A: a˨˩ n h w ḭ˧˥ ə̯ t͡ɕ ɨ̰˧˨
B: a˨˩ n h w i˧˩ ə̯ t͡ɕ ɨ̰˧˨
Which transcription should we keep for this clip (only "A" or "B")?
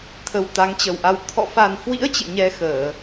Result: A